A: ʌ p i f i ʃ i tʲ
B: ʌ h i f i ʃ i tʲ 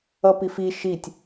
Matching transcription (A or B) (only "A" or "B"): A